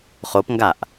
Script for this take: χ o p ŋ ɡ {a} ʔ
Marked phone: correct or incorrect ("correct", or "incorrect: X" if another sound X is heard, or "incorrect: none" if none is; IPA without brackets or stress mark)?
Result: correct